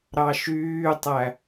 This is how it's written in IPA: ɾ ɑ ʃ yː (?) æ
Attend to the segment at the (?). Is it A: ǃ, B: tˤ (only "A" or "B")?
B